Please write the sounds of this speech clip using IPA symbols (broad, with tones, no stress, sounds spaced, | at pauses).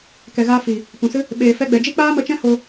k ɛ˨ ɣ aː˧ f i˨ | p ũ˨ s ɨ˦ | ɓ eː˨ f ɛ˧ ɡ͡b ɛ˨ d͡ʒ i˦ k͡p aː˦ m ə˧ t͡ʃ ɛ̃˦ h o˧